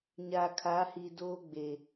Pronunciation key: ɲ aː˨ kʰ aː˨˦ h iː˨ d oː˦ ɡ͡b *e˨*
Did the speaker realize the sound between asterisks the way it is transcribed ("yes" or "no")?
yes